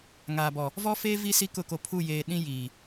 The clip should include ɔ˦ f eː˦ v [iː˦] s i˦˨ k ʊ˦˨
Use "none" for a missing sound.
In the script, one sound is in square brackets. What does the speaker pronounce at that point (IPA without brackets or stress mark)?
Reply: i˦